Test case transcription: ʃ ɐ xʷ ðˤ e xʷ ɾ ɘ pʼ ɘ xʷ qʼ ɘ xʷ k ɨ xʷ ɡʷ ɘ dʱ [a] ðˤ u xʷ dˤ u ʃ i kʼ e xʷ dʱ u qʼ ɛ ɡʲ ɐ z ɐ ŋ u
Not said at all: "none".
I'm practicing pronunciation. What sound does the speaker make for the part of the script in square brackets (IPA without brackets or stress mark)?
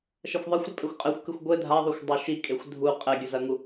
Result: a